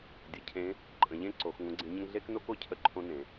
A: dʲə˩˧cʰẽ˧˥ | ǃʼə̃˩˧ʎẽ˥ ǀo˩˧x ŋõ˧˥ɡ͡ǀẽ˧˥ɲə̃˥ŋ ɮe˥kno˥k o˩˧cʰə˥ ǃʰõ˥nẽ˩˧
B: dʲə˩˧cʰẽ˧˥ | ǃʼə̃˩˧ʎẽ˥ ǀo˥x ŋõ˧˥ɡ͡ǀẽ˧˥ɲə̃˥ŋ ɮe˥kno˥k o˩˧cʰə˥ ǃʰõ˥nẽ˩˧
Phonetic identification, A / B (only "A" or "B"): A